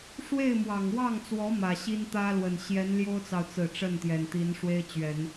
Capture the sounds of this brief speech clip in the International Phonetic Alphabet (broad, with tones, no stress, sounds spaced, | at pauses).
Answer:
ʂ w e˥˩ ɪ̯ m w ɑ˨˩ ŋ w ɑ˥˩ ŋ t͡s w ɔ˧˥ m ä˨˩ ɕ i˥ n t̪ ä˥ l w ə˨˩ n ɕ j ɛ˧˥ n l j o˥ ʊ̯ t͡s ɑ˨ ʊ̯ t͡s ɹ̩˨˩ ʈ͡ʂ ə˥˩ n t̪ j ɛ˨˩ n t̪ i˧˥ n ʂ w e˥ ɪ̯ t͡ɕ ɥ ɛ˨˩˦ n